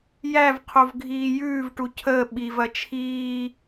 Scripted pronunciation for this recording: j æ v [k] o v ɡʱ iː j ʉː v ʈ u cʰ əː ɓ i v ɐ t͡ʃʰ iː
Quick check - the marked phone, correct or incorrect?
incorrect